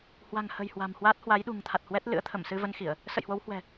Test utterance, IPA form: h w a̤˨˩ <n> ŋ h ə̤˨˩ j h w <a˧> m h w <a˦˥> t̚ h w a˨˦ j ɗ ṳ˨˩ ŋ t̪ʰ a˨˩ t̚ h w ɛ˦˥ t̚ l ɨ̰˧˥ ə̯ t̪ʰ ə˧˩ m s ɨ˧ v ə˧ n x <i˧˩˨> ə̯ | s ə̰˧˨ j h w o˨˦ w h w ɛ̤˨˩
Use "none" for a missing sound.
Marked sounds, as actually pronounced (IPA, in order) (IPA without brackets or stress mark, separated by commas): none, a̤˨˩, aː˦˥, i˧˩˨